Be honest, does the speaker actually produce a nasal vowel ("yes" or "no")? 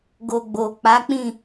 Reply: yes